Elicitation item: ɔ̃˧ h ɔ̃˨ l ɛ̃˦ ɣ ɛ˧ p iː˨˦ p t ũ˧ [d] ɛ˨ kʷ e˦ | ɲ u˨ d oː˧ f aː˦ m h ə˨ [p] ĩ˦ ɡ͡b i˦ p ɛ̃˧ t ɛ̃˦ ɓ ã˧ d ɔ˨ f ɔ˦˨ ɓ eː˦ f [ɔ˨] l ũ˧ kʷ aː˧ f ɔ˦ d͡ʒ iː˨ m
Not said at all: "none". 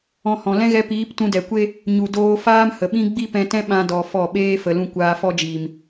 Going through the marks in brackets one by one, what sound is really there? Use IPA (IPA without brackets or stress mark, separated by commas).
d, ɓ, ə˨